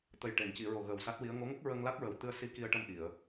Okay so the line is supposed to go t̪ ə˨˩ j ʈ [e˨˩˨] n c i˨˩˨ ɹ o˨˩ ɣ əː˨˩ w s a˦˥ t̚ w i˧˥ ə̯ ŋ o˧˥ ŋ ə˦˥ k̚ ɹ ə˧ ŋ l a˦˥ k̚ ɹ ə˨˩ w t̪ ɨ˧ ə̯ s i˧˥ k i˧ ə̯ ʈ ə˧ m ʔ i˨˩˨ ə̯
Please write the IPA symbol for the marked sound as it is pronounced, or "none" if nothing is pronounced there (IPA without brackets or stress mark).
e˨˩˨